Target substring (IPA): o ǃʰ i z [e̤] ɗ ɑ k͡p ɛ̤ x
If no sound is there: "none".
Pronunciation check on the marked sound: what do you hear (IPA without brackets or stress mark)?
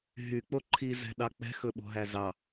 ɛ̤